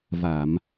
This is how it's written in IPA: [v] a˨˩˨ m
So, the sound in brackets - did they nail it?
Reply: yes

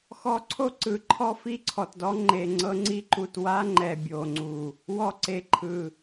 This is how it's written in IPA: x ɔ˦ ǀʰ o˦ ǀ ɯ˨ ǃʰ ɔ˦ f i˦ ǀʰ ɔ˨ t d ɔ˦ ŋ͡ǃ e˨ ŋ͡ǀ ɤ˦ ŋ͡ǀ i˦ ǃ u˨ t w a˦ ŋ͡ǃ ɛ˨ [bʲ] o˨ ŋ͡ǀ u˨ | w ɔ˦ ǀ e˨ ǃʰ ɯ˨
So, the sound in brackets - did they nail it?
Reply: yes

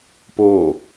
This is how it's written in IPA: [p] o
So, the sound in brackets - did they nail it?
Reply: yes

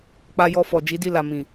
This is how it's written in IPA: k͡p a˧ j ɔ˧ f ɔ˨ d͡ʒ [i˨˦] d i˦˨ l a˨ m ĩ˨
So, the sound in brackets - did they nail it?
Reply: yes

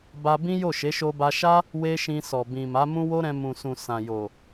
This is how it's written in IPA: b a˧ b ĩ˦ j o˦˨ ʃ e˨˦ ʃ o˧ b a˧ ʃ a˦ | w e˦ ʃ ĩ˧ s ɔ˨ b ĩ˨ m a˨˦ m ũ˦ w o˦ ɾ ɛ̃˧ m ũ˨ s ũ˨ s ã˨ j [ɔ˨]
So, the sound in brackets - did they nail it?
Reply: no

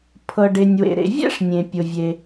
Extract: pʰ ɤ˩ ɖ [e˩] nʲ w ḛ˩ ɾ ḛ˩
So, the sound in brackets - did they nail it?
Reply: yes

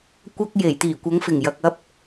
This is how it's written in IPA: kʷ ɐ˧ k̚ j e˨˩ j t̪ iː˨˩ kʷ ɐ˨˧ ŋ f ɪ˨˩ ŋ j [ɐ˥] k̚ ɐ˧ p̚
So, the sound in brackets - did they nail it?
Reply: no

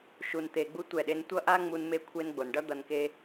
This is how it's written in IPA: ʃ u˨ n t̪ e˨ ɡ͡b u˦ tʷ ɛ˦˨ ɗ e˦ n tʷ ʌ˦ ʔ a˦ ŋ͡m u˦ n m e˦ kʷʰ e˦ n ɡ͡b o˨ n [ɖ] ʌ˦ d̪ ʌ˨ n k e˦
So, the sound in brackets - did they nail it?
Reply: yes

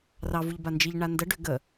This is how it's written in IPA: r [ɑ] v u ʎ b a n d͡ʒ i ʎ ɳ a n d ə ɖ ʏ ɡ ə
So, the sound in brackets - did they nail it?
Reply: yes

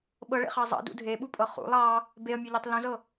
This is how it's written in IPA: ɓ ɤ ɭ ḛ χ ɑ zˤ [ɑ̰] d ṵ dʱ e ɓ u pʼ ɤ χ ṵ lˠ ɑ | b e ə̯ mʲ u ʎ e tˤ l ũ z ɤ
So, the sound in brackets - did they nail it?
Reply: yes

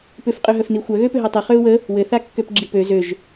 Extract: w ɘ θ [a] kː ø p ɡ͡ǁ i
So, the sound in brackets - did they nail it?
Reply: yes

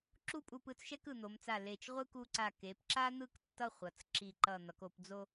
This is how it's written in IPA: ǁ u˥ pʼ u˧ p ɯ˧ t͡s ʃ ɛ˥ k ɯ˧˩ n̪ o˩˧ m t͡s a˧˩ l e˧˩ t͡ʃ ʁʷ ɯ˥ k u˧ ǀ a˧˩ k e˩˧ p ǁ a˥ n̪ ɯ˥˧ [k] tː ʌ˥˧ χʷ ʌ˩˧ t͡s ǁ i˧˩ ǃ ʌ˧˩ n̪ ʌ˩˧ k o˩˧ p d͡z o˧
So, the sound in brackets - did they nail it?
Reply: yes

